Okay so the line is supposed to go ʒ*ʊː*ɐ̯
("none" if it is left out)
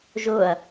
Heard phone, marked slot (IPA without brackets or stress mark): ʊː